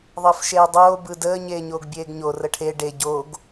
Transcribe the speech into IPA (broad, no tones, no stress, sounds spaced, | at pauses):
ðˤ əː f ʃ eː dˤ oː b ɯ d əː ɲ eː ɲ oː ɡ bʲ eː ɡ ɲ o r ə ʈʰ e ɖ e ɟ o ɡ